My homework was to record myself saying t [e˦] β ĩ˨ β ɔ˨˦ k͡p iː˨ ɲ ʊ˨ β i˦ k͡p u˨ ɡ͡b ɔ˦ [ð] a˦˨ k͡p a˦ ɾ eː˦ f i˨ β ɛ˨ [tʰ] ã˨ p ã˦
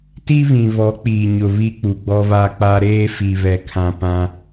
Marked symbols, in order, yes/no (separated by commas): no, no, no